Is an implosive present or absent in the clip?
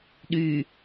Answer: present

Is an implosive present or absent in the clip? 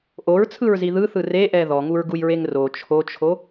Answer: absent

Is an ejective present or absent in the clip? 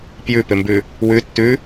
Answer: absent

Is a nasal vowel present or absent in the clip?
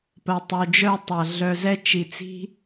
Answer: absent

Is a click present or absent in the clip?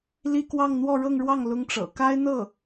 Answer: absent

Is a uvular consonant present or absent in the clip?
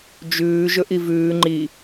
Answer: absent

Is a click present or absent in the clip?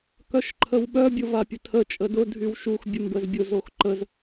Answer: present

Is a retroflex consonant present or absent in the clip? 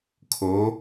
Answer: absent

